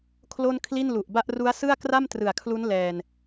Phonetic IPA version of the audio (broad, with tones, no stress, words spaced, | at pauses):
kʰlo˥˩nkʰli˥˩nlu˨˩ʔba˥˩ʔ ru˦˥a̯sɯ˥˩a̯ kra˥˩mtrɯ˨˩a̯kʰlu˦˥n lɛː˧n